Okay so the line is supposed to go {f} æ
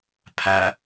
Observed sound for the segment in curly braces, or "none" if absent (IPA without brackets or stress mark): pʰ